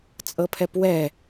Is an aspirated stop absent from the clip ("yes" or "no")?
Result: no